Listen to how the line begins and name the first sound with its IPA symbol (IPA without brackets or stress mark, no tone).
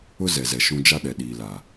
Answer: ʊ